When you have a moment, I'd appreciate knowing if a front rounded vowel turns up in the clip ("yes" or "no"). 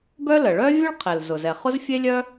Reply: yes